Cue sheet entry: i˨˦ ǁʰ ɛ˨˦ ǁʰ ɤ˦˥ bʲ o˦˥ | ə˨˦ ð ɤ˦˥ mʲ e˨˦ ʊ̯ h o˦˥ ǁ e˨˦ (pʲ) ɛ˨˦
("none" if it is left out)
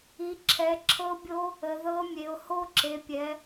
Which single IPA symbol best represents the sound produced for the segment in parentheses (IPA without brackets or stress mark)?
pʲ